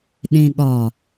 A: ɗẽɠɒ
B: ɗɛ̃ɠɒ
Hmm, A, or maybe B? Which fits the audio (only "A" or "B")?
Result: A